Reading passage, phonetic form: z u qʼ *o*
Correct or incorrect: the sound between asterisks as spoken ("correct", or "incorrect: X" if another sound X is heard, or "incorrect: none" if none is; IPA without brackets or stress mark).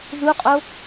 correct